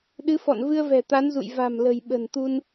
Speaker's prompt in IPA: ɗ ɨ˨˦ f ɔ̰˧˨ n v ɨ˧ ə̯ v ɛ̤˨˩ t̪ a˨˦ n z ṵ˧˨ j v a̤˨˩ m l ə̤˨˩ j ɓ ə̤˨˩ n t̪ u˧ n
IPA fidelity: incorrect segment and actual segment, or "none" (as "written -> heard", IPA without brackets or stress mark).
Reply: none